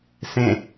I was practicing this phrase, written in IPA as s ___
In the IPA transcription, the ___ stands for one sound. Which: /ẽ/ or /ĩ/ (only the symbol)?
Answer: ẽ